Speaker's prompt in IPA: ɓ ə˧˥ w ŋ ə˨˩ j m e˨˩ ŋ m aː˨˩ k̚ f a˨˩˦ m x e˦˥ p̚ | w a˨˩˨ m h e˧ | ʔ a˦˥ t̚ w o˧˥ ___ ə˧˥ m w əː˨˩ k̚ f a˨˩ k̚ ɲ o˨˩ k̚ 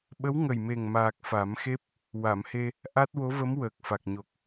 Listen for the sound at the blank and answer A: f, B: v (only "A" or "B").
B